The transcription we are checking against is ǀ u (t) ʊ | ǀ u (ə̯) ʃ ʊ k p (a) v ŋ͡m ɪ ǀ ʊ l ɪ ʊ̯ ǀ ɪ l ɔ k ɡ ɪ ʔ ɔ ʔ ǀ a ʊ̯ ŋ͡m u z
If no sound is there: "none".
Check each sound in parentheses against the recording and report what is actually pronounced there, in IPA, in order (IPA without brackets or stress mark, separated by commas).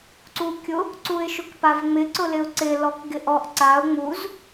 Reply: kʲ, ɪ̯, a